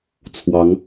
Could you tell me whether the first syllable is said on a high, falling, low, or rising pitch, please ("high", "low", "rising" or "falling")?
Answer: rising